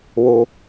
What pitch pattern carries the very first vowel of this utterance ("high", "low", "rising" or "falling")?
low